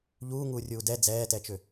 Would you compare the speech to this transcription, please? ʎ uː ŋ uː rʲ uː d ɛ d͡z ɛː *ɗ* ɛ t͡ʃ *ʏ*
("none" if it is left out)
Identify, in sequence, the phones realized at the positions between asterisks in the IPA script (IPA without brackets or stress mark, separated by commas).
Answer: t, ʏ